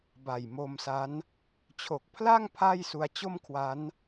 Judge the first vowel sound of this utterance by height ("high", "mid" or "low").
low